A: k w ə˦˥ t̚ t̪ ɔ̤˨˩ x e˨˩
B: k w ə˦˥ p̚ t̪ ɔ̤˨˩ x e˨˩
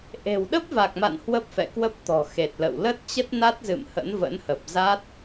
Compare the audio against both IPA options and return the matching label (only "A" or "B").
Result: B